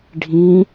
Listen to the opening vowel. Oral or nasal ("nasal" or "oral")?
nasal